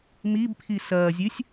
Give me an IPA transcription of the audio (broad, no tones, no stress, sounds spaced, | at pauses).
m i b pʰ i s ɐː zʲ ɨ sʲ